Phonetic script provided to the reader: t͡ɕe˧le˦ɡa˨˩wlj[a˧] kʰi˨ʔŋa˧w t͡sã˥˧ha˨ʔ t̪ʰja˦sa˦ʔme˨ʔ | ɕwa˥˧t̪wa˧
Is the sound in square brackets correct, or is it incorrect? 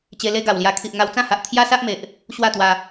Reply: correct